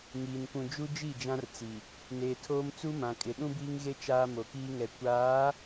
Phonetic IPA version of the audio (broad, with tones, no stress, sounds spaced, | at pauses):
ŋ iː˨ n kʷ ũ˨ d͡ʒ u˦ d͡ʒ i˦˨ d͡ʒ ã˦ r t͡s i˨ | n eː˨ tʰ oː˦ m t͡s u˦ m ã˨ kʼ ɪ˨ ɗ ũ˦ b iː˦ ŋ ɣ e˦ t͡ʃ aː˦ m o˨ k iː˦ ŋ ɛ˨ kʷ aː˨˦